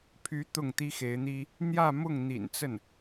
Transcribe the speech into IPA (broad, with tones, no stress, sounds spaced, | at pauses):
pʰ y˧˥ t̪ ʊ˥˩ ŋ t̪ i˥ x e˧˥ ɪ̯ n̪ i˥ | n̪ j ä˥˧ m ʊ˥˩ ŋ n̪ ḭ˨˩ n t͡s ə˥˩ n